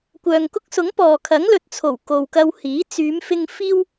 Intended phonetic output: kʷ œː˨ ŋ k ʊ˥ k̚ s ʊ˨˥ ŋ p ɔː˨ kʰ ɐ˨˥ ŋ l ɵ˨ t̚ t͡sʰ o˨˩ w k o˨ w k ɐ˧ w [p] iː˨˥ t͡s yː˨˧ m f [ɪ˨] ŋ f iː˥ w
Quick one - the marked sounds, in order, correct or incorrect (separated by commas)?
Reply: incorrect, incorrect